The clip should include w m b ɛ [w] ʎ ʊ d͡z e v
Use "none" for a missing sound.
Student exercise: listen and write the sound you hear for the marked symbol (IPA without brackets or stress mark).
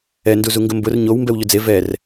w